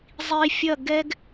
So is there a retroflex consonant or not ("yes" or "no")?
no